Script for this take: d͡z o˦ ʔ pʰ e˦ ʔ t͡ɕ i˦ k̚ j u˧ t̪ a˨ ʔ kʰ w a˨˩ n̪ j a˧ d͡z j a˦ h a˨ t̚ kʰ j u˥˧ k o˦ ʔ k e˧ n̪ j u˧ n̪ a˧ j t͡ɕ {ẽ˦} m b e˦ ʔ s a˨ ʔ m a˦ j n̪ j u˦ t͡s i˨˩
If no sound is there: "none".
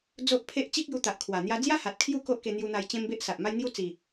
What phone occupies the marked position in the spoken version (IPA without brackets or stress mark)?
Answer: ẽ˦